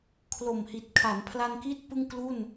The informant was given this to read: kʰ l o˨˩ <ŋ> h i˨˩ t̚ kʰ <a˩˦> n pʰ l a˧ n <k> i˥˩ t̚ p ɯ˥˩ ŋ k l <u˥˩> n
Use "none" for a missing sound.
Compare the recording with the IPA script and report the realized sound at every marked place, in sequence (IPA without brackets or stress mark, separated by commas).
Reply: m, a˩˦, k, u˥˩